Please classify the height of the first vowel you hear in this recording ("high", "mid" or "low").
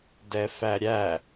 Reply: mid